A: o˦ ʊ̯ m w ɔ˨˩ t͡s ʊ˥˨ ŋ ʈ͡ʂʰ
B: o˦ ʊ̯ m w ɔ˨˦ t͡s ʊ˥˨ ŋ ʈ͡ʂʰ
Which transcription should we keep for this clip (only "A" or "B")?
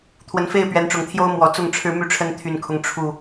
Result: A